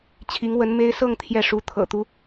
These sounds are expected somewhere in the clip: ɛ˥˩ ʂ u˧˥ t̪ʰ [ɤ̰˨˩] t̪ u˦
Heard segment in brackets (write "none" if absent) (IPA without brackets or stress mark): ɤ̰˨˩